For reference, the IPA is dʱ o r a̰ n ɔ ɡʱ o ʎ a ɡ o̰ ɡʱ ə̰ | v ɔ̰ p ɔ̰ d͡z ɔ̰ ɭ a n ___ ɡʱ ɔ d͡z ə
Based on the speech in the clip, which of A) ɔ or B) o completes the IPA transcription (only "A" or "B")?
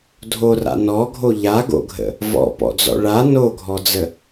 B